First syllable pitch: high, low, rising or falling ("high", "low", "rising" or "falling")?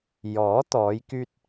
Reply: rising